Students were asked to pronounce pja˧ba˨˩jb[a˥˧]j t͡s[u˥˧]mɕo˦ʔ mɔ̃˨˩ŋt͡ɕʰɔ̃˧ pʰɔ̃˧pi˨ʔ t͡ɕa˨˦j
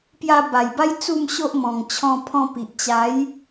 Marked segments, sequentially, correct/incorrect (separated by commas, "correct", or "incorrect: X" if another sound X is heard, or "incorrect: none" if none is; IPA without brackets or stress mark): incorrect: a˦, correct